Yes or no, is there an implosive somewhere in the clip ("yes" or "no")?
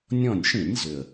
no